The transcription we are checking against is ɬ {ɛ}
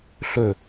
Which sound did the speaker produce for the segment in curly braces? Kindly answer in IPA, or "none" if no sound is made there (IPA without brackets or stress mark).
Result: ø